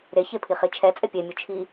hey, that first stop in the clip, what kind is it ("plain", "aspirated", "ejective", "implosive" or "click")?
aspirated